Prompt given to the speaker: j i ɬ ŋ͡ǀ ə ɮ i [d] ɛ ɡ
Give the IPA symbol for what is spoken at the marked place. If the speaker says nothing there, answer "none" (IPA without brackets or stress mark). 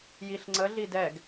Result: d